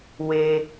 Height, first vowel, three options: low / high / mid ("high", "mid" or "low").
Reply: mid